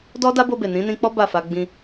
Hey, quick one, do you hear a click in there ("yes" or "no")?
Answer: no